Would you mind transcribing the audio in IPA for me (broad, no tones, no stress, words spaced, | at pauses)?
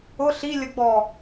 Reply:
ʊ ɬilʲəɡ͡bɔ